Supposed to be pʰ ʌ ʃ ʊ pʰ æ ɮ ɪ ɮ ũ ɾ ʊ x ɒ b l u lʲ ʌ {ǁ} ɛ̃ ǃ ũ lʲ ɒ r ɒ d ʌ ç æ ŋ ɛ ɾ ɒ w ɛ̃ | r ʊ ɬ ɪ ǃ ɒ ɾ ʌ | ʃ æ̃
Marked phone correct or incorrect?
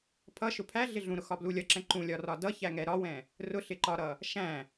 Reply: correct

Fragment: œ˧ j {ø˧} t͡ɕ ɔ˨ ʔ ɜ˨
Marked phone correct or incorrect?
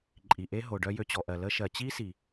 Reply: correct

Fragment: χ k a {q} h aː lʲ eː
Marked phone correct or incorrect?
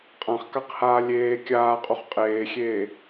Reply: correct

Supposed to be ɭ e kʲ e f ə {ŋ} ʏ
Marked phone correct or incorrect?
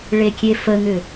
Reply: correct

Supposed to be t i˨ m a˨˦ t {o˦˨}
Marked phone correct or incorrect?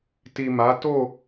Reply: correct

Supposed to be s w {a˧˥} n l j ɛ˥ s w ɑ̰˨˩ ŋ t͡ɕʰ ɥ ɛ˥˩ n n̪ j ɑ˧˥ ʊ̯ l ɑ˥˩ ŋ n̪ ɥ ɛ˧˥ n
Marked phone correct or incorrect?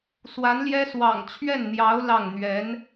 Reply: correct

